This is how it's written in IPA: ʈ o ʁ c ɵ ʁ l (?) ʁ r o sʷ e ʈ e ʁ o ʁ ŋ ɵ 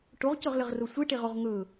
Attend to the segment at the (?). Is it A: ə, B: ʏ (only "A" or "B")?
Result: A